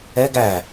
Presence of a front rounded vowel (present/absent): absent